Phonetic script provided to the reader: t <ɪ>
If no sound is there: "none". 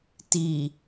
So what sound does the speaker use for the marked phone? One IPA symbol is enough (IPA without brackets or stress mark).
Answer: i